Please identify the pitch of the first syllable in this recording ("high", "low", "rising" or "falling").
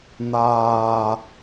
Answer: low